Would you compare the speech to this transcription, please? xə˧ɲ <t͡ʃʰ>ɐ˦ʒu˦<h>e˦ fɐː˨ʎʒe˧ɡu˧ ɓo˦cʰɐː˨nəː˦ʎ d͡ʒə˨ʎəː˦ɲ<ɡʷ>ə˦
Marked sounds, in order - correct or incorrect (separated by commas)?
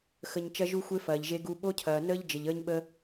incorrect, incorrect, incorrect